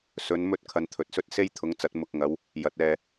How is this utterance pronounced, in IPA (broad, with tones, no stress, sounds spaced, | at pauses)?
s ɵ˨˥ n m ɵ˥ t̚ kʰ ɐ˧ n t̪ʰ ɵ˨˥ t̚ s ɵ˥ t̚ s e˥ j t̪ʰ ʊ˨˥ ŋ t͡s ɐ˨˥ t̚ m ʊ˨ k̚ ŋ ɐ˨˧ w | j ɐ˨˥ t̚ ɛː˧